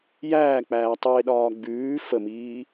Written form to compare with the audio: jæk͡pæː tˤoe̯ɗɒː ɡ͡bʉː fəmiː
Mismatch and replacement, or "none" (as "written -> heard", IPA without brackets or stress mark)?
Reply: æ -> æː